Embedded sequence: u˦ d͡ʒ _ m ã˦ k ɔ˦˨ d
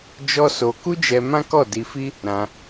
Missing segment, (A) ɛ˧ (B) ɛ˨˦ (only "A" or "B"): A